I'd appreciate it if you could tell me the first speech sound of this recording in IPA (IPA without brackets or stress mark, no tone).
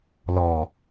l